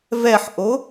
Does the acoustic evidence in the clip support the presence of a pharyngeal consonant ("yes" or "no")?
yes